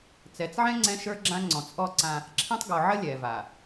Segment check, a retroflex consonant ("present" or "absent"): absent